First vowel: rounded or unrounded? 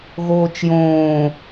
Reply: rounded